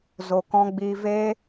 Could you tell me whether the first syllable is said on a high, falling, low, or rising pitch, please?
low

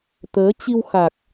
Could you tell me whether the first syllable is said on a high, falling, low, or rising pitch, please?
rising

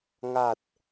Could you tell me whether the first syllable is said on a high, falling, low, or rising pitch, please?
low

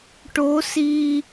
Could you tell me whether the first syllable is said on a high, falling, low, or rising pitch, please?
rising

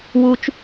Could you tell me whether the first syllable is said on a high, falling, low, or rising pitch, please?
high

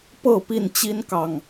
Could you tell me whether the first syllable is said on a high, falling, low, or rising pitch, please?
falling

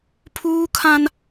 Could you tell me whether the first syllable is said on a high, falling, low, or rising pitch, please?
high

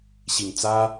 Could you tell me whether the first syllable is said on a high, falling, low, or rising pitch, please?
low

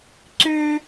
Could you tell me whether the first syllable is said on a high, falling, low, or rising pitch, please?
high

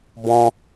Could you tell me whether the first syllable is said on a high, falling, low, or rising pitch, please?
high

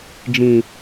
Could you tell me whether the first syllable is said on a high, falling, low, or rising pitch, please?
low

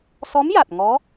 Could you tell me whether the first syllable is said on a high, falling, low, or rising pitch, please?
rising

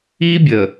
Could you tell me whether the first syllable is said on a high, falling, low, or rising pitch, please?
high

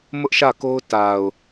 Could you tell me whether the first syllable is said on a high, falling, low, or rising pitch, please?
high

